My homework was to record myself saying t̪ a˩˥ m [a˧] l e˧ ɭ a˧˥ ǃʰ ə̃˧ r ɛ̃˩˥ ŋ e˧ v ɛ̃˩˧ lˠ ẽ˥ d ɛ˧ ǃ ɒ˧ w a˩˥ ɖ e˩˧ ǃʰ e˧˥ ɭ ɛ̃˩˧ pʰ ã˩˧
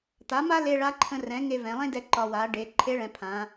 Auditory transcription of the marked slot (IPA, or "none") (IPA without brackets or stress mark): a˥